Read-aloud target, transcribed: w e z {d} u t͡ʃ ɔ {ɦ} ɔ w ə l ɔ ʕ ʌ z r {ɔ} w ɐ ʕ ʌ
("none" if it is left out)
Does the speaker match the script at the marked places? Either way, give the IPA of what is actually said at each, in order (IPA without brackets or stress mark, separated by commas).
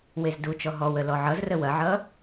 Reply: d, ɦ, ə